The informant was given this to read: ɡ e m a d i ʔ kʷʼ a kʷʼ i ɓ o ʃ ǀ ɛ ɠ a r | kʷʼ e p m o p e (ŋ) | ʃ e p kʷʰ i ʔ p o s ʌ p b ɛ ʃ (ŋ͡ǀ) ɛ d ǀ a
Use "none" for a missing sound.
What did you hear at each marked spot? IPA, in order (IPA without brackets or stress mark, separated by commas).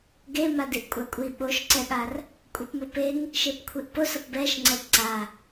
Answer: ŋ, ŋ͡ǀ